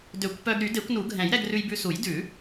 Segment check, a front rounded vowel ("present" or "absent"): present